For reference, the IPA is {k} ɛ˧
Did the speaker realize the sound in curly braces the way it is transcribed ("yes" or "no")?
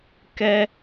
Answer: yes